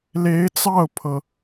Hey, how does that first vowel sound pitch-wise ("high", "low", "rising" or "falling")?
rising